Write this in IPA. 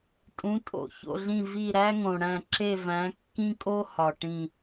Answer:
tʼ ũ˩˧ tʼ o̰˩ ç o̰˧˩ ɮ ĩ˧˩ v i˧˩ ɾ æ˦ ŋ õ˩ ɽ æ̃˧˩ ǁ e˧˩ v æ̃˩˧ kː ĩ˦ kʼ o˦ h ɒ˩ ʈ ĩ˧˩

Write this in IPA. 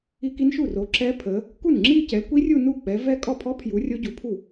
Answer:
i˦˥ k i˦˥ n ʃ u˥˩ r o˨˦ ǁ ɛ˦˥ pʰ ə˨˦ | k u˥˩ n ŋ͡ǁ i˥˧ c ɛ˨˦ l kʷ i˦˥ rʲ u˥˧ n u˥˩ k͡p ɛ˨˦ v ɛ˥˧ kʼ ɔ˥˩ pʰ ɔ˦˥ pʰ j u˨˦ rʲ o˦˥ ɟ u˨˦ pʰ u˥˩

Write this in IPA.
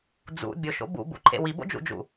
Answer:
d͡z ṵ bʲ o ʃ o̰ b ṵ b ṵ ǃʰ ḛ w i b o̰ d͡ʒ ṵ d͡ʒ ṵ

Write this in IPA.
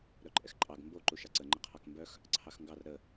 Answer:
ɾ œ ǃʼ ɛ x ǃʼ ɑ ɡ m b o ǃ u ʃ ɑ ǀ ə ŋ͡ǃ ə qʰ ɑ k m b œ x | ǀʰ ɑ x ŋ ɡ ɑ r ɾ ə

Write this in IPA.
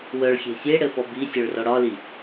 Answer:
w œ ɭ xʲ e̤ sʲ e ɽ ɘ f ɔ b i sʲ œ ɭ r ɔ ɽ ɒ l i

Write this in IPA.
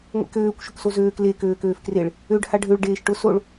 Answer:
ŋʷ ḛ k øː kʷ ʃ ʊ k s o z øː k l e k øː k øː f k r e ɭ | ø ɖ h a ɖʱ ø ɭ ɖ eː ʃ ʈ ʊ s o ɭ

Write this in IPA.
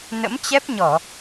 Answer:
n ə̰˧˥ m t͡ɕ ɛ˦˥ p̚ ɲ ɔ˧˩˨

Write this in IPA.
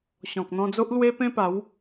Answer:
ɕ ɔ̃˨ k̚ n̪ ɔ̃˧ d͡z o˦ ʔ l w e˦ p ẽ˦ p a˨˦ w

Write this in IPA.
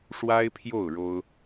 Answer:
ʂ w a˥ ɪ̯ pʰ j o˥˩ ʊ̯ ɻ o˥ ʊ̯

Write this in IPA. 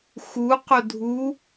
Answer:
x u q o dʱ u

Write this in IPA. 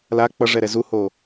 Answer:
l a k͡p ʌ ʐ ɛ ɾ ɛ z u h o

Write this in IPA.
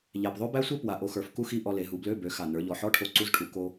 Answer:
ʎ æ˨˩ p ðˤ o˥ b æ˥ sʷ e˥ p w a˨˩ ʔ o˧ x ə˞˨˩ f k u˥ x i˧˥˧ ʔ ɔ˧ l e˩˧ ɦ u˩˧ b l ø˧˥˧ b ø˩˥ x a˨˩ n ə˞˩˧ ʎ ɔ˩˧ ħ ɔ˧˥˧ ʈʰ o˧ ǀ u˧˥˧ z ʈʰ u˩˧ k o˧

